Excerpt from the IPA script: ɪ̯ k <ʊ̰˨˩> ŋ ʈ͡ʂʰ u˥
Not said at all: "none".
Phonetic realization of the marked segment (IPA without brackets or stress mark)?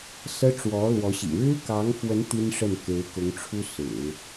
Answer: ʊ˧˥